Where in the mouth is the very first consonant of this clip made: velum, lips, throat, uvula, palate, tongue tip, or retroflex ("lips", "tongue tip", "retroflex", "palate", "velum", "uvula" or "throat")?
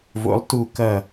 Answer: lips